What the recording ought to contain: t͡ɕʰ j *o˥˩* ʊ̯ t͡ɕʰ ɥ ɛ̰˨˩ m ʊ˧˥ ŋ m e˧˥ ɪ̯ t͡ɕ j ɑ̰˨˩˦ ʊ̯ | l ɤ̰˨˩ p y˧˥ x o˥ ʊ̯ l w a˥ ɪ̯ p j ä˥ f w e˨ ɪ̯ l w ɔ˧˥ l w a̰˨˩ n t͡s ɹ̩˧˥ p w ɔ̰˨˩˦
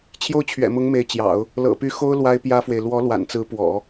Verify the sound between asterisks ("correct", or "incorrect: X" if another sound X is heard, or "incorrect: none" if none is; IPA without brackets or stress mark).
correct